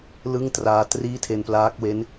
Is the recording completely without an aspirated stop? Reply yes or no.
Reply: no